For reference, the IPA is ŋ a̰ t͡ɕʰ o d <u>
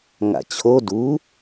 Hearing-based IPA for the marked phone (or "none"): u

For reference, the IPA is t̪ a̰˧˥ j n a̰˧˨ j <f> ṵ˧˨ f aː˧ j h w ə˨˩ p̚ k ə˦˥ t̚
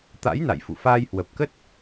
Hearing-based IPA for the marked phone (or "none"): f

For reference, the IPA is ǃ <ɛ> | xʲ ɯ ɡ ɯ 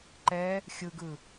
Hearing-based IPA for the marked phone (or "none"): ɛ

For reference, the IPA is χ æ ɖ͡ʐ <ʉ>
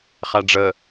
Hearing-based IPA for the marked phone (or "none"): ə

